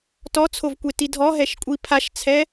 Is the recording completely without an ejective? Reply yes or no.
no